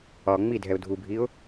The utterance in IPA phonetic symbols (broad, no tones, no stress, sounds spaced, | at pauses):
ɒ ŋ͡m i dʱ ɛ ʊ̯ dʱ u bʱ i ʊ̯